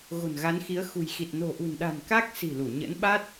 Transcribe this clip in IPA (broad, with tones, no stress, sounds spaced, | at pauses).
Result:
ɣ o̤˨˩ n ɣ a˨˦ n x i˨˦ ə̯ x ṳ˨˩ j x i˨˩ t̚ n o̤˨˩ ʔ ṳ˨˩ n ɗ a̤˨˩ n k a˦˥ k̚ s i̤˨˩ l u˧˩ ɲ ə̰˧˥ n ɓ a˦˥ t̚